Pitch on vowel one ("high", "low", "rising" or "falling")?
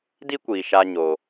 high